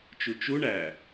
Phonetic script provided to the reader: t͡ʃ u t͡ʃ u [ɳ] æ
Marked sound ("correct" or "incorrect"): correct